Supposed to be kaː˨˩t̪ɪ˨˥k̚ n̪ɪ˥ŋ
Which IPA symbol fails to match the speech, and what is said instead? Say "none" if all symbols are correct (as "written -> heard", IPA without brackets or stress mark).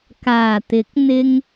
none